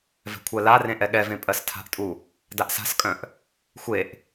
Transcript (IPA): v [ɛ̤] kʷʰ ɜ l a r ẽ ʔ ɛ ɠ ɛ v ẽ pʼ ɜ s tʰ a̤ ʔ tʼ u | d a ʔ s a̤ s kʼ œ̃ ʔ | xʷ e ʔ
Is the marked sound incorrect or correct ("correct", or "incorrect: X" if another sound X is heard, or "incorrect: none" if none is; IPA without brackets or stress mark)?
correct